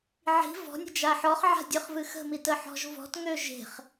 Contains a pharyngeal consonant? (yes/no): yes